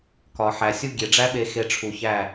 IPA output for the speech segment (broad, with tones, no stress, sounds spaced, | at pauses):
k ɒ˨ ħ æ˨ sʲ u˦ ɡʲ e˨ ɖ͡ʐ æ˦ ɓ e˧ x e˧ ʈ͡ʂʰ u˨ ç æ˦˨